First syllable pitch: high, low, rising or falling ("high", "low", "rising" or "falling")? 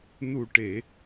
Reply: low